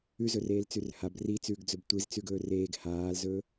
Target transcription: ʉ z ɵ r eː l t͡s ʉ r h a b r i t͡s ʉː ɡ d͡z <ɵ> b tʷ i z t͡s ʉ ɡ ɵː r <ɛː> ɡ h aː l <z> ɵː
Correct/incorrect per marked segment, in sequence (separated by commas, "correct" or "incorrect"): correct, incorrect, correct